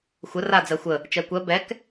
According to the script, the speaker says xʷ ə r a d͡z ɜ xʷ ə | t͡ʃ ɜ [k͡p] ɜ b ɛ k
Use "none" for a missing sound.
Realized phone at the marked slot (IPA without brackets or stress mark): kʷ